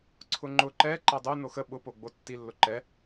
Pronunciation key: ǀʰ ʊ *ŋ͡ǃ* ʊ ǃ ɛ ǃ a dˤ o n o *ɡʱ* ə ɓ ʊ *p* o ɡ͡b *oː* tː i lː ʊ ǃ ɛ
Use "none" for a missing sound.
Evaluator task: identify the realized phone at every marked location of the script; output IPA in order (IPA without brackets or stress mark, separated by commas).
ŋ͡ǃ, x, p, o